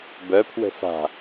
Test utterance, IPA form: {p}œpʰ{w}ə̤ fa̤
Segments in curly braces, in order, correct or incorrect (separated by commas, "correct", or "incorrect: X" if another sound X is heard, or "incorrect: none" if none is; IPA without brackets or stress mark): incorrect: b, correct